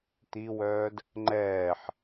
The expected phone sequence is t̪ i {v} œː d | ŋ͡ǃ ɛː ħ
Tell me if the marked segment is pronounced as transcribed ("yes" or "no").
no